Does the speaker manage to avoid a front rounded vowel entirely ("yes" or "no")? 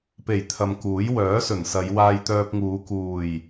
no